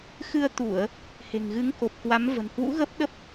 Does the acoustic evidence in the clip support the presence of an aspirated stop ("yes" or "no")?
no